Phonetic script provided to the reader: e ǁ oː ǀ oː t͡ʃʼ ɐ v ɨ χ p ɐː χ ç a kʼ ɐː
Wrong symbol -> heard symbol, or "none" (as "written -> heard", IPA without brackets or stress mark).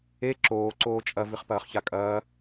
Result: none